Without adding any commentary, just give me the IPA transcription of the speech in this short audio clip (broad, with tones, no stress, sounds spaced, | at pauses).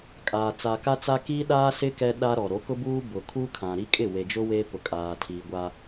kʼ aː˨ t͡s a˨ k a˦ t͡s a˦ k i˦ ɗ aː˦ s ɪ˦ k ɛ˦ ɗ a˦ ɾ ɔ˨ ɾ o˨˦ k ʊ˦ b uː˦ b ʊ˨ kʰ uː˦ kʰ ã˨ ɾ i˦ kʼ ɪ˦˨ w e˨ d͡ʒ ʊ˦ w eː˦ p ʊ˨ kʼ aː˨ tʰ iː˨ ɡʷ a˦